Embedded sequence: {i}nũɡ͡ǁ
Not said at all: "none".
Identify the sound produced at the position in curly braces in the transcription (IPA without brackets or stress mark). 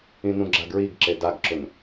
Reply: ĩ